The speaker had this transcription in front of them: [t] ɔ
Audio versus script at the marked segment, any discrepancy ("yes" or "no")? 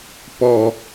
yes